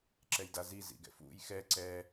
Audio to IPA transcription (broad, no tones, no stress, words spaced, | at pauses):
ǁɛjdazi zḭɡɛ̰fṵj xɛ ǀɛ